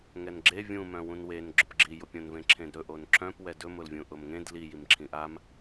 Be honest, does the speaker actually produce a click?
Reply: yes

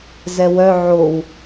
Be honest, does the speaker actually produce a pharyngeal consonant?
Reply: yes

